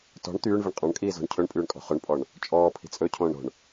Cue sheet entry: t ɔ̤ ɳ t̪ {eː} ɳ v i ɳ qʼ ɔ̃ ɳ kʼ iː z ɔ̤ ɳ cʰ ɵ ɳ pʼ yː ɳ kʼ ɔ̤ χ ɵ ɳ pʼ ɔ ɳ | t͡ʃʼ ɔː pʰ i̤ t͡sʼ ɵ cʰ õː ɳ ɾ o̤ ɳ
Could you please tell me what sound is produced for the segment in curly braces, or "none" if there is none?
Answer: yː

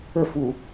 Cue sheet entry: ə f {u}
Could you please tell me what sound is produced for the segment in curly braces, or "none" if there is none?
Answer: u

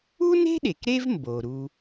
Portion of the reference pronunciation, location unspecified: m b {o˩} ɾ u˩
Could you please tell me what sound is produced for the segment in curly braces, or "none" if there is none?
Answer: o˩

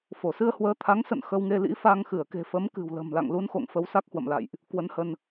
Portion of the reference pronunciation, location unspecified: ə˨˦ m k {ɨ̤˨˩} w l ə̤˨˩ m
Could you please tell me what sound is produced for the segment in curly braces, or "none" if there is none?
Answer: ɨ̤˨˩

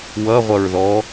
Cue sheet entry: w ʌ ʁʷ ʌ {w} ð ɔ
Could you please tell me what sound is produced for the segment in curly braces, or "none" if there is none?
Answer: ɹ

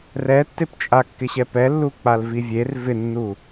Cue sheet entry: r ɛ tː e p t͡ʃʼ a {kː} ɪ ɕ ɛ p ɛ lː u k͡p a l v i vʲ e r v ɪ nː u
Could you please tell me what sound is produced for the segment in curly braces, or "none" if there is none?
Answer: kː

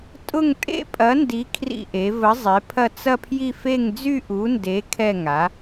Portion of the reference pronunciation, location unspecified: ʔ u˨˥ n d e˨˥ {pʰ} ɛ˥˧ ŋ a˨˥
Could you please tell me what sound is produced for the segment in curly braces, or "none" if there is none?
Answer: kʰ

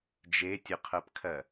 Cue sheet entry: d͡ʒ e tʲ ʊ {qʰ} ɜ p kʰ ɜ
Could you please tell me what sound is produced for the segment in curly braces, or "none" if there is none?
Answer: qʰ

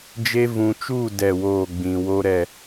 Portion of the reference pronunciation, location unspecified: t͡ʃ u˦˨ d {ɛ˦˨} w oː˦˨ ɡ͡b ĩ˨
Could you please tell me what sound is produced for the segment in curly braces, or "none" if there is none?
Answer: ɛ˦˨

